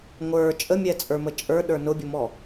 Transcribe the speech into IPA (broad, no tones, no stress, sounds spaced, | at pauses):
ŋʷ ə˞ t͡ʃʼ ə mʲ ɛ t͡sʼ ə˞ m ə t͡ʃʼ ə˞ ɗ ə˞ n ʊ bʲ ʊ m ɔ